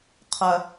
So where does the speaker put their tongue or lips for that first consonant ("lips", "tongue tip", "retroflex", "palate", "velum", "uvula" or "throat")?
uvula